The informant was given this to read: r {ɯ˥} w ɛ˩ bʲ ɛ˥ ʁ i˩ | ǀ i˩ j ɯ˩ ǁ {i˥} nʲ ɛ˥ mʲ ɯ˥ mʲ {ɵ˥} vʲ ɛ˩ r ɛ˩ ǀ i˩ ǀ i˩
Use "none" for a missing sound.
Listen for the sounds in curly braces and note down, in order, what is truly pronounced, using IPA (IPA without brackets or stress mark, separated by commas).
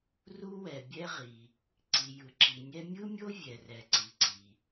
u˥, i˩, o˥